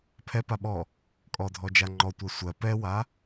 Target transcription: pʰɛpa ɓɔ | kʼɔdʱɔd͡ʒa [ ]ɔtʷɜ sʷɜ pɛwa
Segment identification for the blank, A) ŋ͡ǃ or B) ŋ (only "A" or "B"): A